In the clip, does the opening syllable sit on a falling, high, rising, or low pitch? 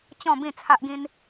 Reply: falling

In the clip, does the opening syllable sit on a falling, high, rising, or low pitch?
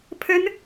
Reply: high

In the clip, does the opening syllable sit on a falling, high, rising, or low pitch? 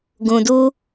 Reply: low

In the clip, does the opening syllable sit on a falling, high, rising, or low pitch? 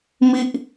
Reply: high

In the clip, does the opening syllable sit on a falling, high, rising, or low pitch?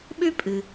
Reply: high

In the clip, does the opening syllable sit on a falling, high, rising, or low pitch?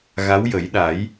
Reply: rising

